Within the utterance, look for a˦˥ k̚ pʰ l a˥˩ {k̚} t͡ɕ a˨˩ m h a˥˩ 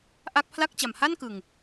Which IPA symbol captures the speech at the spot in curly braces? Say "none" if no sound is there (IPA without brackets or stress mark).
k̚